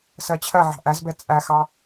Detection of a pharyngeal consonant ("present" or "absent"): present